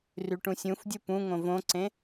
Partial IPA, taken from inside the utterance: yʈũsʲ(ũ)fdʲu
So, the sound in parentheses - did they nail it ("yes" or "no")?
yes